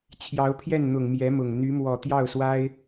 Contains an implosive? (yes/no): no